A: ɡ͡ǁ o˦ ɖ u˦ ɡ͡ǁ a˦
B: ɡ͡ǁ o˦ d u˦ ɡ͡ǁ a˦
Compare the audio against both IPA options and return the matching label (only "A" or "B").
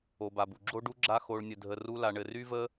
A